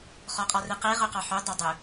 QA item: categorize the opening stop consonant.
ejective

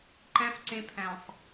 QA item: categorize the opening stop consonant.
click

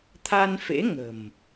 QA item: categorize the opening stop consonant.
aspirated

